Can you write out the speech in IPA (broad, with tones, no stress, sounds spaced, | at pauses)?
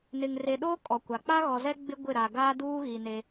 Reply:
n ɪ˨ ŋ r e˨ ɗ o˦ kʼ ɔ˨ kʷ a˨ k͡p a˦ ɣ ɔ˨ z ɛ˦ ɡ͡b ɪ˦ ɡʷ ɪ˦˨ ɾ a˨ ɡ aː˦ d uː˦ ɣ i˨ n e˦